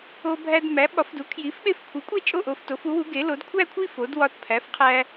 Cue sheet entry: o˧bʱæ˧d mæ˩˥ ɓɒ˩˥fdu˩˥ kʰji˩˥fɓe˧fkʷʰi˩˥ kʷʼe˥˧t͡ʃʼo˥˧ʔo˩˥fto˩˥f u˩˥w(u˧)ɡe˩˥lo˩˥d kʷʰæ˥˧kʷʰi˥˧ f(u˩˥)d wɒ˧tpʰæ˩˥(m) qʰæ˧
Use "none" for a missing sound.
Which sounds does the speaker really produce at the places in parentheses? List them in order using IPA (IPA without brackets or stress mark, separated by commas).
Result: u˩˥, o˩˥, f